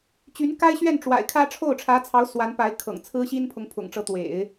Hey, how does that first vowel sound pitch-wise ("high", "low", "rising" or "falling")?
rising